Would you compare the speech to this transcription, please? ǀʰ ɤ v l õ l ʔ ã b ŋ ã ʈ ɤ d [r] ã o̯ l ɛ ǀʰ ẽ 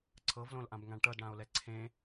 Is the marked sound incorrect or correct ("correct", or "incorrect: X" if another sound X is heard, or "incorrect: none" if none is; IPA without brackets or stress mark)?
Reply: incorrect: ɽ